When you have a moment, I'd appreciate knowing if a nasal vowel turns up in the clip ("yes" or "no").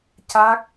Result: no